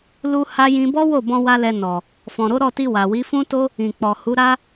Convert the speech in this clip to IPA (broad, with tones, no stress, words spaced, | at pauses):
lu˦ha˦ jĩ˧bɔ˦wo˦˨bɔ̃˧ wa˦lɛ˧ nɔ˨ | fɔ̃˨ɾo˨˦ɾɔ˦˨ti˧ wa˨ wi˨˦fũ˦to˦ | ĩ˨k͡pɔ˨ hu˨˦ɾa˦